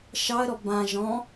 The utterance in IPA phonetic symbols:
ʃɑə̯ɾɔ bã ʒɔ̃

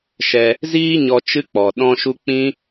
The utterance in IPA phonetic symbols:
ʃɛ˧ | ziː˦ɲɔ˧ t͡ʃɨ˦k͡pɔ˨ɗɔ̃˦ʃu˦ k͡pĩ˦

